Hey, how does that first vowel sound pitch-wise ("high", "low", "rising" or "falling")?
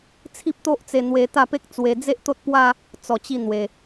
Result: high